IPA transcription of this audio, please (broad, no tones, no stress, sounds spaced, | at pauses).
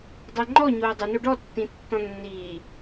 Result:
dˤ ɛ ŋ͡ǃ ɔ ɲ oː dˤ ɨ n o ɖ ɔ tː ĩ tː ɔ̃ nː iː